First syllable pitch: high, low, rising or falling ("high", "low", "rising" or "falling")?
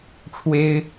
high